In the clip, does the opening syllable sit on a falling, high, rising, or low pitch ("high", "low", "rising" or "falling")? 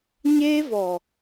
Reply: high